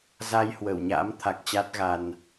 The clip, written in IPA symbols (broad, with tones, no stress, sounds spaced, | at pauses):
z a˧ j h w ə˧˩ w ɲ a̰˧˥ m t̪ʰ a˨˩ k̚ t͡ɕ a˦˥ t̚ ɣ a˧ n